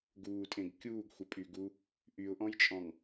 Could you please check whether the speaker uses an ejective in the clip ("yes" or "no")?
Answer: yes